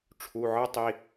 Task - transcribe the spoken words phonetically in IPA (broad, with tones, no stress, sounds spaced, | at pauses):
ʈ͡ʂʰ u˩˧˩ ʕ ɯ˥ tˤ i˩˧˩